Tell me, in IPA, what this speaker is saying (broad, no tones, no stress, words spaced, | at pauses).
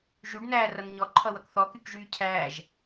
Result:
ʒyɖnæː rʌnɲɔǃʰʌwʌk θɔkykʒyː cʰæːʒ